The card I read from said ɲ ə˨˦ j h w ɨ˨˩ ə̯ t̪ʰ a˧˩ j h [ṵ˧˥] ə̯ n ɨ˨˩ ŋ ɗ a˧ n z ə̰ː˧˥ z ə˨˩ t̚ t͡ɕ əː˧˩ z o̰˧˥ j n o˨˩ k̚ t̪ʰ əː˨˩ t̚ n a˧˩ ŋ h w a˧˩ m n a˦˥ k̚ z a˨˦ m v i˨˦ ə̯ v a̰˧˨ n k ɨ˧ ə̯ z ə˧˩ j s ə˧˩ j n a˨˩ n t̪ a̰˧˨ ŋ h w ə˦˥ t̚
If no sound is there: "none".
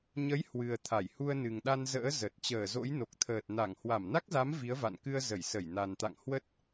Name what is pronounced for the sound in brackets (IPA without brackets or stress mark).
u˧